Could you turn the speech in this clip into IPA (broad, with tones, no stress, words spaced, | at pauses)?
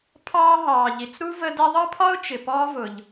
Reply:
pʰɑː˦ ɦɑː˨ʎi˨t͡s ɾu˥və˦ dɛ˦ðˤʌ˥pʰɒ˥ʊ̯t͡ʃɪ˨ pɔː˦vʊ˨ʎ